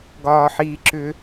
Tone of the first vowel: high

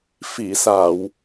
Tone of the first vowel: low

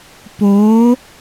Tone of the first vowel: rising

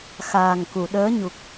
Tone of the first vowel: low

